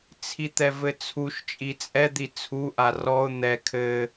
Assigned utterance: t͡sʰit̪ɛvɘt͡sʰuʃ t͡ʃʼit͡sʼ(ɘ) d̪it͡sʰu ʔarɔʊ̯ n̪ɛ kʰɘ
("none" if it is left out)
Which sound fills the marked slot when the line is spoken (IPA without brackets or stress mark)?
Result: ɛ